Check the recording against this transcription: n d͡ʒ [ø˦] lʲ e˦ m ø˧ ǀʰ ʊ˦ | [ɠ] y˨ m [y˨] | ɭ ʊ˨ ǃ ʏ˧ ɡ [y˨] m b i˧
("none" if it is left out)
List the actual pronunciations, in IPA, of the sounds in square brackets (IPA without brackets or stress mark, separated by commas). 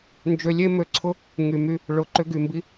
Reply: ø˧, ŋ, y˧, y˨